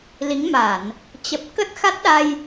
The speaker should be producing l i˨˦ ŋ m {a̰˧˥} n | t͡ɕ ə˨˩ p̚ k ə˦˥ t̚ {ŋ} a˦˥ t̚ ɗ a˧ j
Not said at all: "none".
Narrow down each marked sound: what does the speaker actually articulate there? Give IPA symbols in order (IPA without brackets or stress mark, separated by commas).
a˧˩˨, x